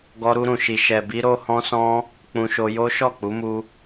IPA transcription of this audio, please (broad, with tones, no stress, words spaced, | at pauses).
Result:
ɡɔ˧ɾu˧ɾũ˨ʃi˨ ʃɛ˨bi˧ ɾo˧hɔ̃˧sɔ̃˧ | k͡pũ˧ʃo˧jo˦ ʃɔ˦˨k͡pu˨˦mu˧